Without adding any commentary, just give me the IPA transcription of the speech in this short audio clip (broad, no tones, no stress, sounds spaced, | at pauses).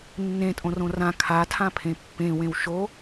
nː ẽ tʼ õ r õ r ã kʰ a tʰ ã pʰ ẽ pː ẽ w ẽ w ʃ o